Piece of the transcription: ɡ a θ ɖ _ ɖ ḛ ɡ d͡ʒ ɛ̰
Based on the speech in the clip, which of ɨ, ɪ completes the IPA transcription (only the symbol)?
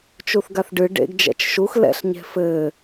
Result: ɨ